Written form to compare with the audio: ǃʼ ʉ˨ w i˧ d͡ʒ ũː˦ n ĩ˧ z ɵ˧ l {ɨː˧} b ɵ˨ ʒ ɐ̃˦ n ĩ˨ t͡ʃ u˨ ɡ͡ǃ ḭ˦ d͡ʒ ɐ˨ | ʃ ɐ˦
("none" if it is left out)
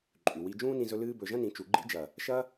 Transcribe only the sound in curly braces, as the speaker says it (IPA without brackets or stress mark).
ɨː˧